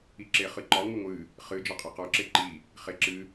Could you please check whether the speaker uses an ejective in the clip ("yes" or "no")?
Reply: yes